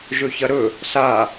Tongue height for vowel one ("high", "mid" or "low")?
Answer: mid